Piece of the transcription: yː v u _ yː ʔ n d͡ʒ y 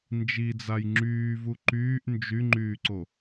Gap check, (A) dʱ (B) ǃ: B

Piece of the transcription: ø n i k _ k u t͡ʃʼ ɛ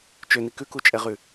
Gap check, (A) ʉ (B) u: A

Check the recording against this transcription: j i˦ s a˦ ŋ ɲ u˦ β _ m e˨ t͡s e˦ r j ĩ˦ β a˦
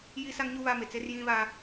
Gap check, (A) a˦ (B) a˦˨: A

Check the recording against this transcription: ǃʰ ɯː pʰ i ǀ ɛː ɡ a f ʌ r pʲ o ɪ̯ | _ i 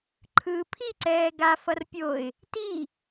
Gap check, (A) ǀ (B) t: B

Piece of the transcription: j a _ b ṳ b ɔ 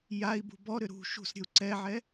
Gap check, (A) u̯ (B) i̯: B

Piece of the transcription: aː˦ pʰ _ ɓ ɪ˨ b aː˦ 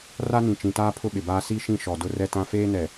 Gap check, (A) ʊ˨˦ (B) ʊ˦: B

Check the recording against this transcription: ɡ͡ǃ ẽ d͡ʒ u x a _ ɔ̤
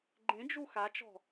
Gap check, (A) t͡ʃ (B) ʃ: A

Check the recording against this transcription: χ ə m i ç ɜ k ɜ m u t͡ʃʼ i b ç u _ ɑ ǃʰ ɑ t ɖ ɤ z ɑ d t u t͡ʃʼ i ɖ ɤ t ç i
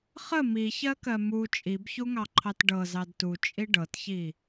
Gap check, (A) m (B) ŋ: B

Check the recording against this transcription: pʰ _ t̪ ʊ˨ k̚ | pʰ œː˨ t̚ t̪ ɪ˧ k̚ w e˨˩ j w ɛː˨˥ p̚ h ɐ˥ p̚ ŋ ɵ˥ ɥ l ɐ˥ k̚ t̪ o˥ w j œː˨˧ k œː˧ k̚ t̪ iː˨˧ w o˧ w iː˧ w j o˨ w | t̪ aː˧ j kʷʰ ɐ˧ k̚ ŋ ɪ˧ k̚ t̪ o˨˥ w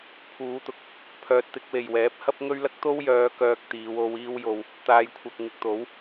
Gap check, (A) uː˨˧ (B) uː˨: A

